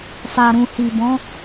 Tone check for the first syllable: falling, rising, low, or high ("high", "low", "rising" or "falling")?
low